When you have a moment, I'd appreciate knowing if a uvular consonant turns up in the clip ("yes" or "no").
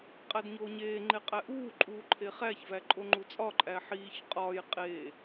yes